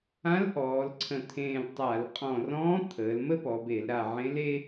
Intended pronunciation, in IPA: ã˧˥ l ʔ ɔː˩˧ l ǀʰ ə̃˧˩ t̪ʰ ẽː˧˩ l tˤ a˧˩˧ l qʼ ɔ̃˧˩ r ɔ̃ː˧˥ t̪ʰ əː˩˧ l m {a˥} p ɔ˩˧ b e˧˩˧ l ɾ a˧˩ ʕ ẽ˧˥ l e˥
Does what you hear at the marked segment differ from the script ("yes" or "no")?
yes